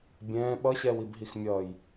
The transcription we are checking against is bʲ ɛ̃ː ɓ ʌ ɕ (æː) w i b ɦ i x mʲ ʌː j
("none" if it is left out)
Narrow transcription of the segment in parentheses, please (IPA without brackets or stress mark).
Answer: ɛː